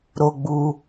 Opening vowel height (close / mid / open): mid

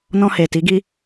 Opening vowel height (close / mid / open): mid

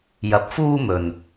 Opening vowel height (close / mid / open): open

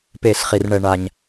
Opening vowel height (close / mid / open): mid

